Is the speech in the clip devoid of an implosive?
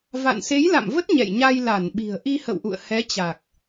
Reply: no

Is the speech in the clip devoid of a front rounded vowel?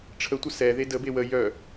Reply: no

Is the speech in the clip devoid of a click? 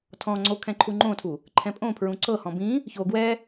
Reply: no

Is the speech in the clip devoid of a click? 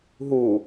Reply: yes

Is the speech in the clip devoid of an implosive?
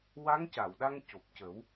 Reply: no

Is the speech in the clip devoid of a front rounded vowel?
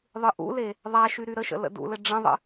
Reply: no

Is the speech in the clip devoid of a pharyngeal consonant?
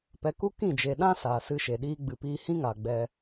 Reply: yes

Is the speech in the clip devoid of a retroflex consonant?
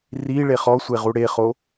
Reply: no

